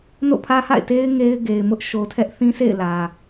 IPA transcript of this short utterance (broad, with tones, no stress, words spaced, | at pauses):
no̰˦˨pʰä˦ha̰˦˨ɪ̯ te˦ɪ̯ ŋe˦ɪ̯ɡe˨ɪ̯mʊ˦ʔ ʃo˨tʰɛ˦ʔθĩ˦sʰḛ˦˨ɪ̯ lä˨